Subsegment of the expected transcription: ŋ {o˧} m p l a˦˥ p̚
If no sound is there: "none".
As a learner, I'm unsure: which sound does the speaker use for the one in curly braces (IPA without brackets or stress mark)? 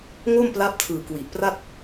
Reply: o˥˩